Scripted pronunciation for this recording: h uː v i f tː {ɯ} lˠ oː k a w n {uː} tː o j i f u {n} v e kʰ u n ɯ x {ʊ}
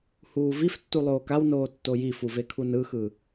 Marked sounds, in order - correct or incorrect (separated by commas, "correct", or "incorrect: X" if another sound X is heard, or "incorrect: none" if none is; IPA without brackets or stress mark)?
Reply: incorrect: u, incorrect: oː, incorrect: none, incorrect: ɯ